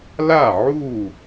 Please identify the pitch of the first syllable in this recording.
falling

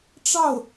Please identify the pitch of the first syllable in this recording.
falling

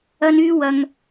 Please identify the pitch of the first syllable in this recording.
high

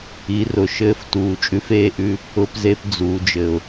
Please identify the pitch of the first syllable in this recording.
rising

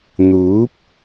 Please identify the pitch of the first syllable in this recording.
rising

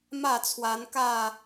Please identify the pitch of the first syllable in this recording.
falling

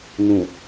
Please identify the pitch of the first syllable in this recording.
low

